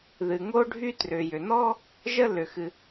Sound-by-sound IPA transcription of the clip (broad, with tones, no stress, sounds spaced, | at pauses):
ð ɨ˩ ŋ o˥ ɖʱ y˥ t r ʏ˩ j ʏ˩ n ɔ˥ | ʒ ə˥ l ʏ˩ x ɨ˩